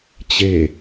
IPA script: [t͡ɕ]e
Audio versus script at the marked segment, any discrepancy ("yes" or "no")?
no